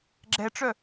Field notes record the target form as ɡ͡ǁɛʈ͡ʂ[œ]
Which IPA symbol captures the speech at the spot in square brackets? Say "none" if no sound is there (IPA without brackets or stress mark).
œ